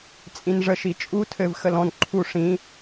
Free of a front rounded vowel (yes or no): yes